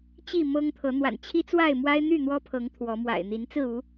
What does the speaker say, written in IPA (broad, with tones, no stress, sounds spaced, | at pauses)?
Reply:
t͡ɕ i˥˨ m ɤ˦ ŋ t̪ʰ ɤ˨˦ n̪ w a̰˨˩ n t͡ɕʰ i˦ t͡s w a˥˨ ɪ̯ m w a˦ ɪ̯ n̪ y˥˨ n̪ w ɔ˦ pʰ ɤ˨˦ ŋ t̪ʰ w ɔ˨˦ m w a̰˨˩ ɪ̯ n̪ i˨˦ n t͡s ɹ̩˥˨ u˨˦